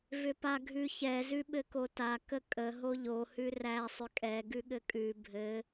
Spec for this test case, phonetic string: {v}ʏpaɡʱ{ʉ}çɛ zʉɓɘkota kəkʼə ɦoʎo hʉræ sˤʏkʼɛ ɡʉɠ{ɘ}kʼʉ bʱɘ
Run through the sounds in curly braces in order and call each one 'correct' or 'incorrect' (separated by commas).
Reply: correct, correct, correct